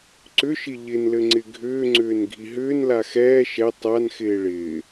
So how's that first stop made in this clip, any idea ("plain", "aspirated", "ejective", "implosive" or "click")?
click